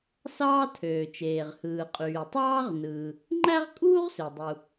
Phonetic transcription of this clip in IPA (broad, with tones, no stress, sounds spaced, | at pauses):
s ɑː˥ tʰ øː˩ t͡ʃ eː˩ ʁ h ɯː˩ qʼ yː˩ tˤ ɑː˥ ʁ n ɯː˩ | ŋ͡ǃ æ˥ ʁ kʼ uː˥ ʁ s ø˩ dˤ u˩